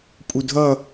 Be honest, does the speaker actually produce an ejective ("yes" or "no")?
yes